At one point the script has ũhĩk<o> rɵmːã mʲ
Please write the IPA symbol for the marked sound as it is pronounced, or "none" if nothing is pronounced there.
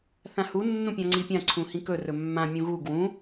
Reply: ɵ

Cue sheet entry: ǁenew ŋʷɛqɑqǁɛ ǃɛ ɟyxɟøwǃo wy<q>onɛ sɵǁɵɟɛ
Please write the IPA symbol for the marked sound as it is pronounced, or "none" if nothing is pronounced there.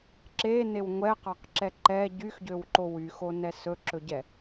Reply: x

